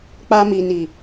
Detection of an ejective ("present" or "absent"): absent